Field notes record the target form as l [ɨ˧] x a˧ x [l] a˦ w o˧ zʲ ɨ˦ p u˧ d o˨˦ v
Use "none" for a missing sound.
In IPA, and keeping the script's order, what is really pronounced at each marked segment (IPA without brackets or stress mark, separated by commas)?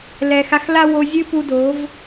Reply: ɛ˧, l